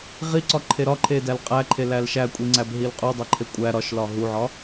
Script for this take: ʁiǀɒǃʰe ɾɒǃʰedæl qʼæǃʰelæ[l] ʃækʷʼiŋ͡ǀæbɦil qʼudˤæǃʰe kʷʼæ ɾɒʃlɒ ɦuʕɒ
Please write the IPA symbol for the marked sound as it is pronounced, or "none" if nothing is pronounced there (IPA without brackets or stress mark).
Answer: l